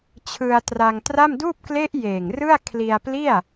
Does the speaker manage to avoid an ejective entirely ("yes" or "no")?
yes